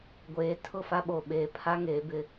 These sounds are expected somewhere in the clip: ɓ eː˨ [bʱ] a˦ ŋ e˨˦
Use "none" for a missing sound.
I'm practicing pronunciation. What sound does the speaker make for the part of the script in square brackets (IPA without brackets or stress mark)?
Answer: pʰ